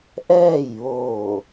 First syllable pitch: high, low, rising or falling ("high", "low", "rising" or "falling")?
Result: falling